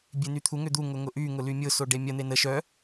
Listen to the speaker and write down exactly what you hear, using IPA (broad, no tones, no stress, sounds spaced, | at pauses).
bʲ e n y t̪ʰ u ŋ ʏ d̪ u ŋ ʊ ŋ ʊ ʔ y ŋ ʊ l y mʲ ʊ s o ɖ e mʲ ɐ n̪ e n ə ʃ œ